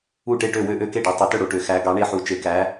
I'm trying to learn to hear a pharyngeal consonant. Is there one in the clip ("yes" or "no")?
yes